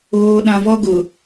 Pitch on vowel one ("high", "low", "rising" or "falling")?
low